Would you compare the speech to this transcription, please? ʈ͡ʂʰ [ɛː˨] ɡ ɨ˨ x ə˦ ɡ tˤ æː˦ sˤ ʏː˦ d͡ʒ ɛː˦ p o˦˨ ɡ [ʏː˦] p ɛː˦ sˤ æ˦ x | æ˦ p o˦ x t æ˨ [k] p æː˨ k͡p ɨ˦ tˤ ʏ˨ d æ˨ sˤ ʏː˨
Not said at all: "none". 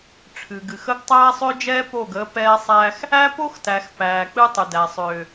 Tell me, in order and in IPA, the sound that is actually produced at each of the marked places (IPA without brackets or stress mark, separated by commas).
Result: ɨː˨, əː˦, x